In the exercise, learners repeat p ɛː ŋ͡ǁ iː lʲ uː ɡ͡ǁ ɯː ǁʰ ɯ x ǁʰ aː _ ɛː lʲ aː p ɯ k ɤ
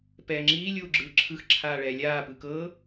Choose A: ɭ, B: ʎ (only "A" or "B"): A